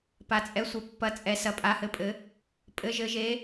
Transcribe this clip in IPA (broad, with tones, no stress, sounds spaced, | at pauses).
p a˩ t͡sʼ ɛ˩˧ sʷ ɘ˩ pː ɐ˩˧ t͡sʼ ɛ˩ s ɐ˩ pʼ a˩˧ h ɘ˩ pʼ ɘ˩˧ | pʼ ɘ˩˧ ʒ ɘ˩˧ ʒ e˩˧